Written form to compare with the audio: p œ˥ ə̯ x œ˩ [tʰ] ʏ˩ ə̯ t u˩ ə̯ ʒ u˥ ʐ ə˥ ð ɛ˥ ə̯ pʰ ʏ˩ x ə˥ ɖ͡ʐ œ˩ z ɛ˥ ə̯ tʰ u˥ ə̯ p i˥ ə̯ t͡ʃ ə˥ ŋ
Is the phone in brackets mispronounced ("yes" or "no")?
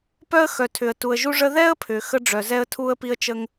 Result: no